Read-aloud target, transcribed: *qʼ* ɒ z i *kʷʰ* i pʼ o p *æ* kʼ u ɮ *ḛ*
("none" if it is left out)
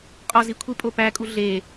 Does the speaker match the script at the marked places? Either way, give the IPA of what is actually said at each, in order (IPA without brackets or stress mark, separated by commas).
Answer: qʼ, kʷʰ, æ, e